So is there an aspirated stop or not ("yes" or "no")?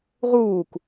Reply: no